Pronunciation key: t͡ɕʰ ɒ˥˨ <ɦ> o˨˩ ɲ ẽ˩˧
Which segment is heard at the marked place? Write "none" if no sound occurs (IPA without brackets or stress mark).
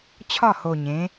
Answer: h